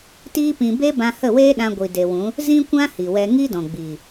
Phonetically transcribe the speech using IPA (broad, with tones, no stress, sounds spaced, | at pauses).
t iː˦ p ĩ˧ b e˦ b ã˧ h ə˦˨ w eː˦ ɗ ã˧ ɡʷ i˨ d e˨ w ũ˨˦ | z ĩ˦ kʷ ã˦ h i˨ w ɛ˧ ŋ i˦ d ɔ̃˨ ɡ͡b iː˨